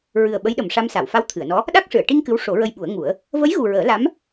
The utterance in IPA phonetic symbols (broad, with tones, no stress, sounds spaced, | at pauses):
ɹ ɨ˨˩ ə̯ ɓ ə˧˥ j ɗ ə˨˩ m ʂ a˧ m s a˨˩˨ w f a˧˥ w t̪ʰ ɨ˨˩˨ ə̯ n ɔ˧˥ | ɗ a˦˥ k̚ ʂ ɨ˨˩˨ ə̯ ʈ i˧ ŋ k ɨ˧˥ w ʂ o˨˩˦ ɹ ə˧ j ɓ u˨˩˦ ə̯ ŋ u˨˩˦ ə̯ | v ə˧˥ j ɣ u˨˩ ɹ əː˨˩˦ l a˧˥ m